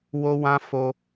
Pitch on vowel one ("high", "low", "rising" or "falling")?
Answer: high